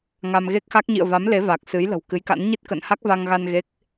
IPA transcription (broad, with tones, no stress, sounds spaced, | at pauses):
ŋ a˧ m ɣ e˦˥ k̚ x a˦˥ k̚ ɲ ḭ˧˨ ə̯ v a˨˦ m l e˨˦ v aː˨˩ k̚ s ɨ˨˦ j l ə̤˨˩ w k ɨ˨˦ j k a̰˧˥ n ɲ i˦˥ t̚ k ə̰ː˧˨ n h a˦˥ k̚ v a˧ ŋ ɣ a˧ n ɣ e˦˥ k̚